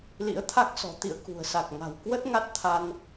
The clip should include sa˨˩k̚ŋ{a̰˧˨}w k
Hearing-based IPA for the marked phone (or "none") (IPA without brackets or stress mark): a̤˨˩